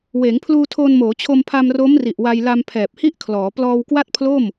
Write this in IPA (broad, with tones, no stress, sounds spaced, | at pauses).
w eː˩˦ ŋ pʰ l uː˧ tʰ oː˧ n m oː˩˦ t͡ɕʰ o˧ m pʰ a˧ m r o˦˥ m r i˨˩ ʔ w a˧ j l a˧ m pʰ ɛː˨˩ p̚ h i˥˩ ʔ kʰ l ɔː˩˦ p l ɔː˧ w k w a˥˩ t̚ pʰ l o˥˩ m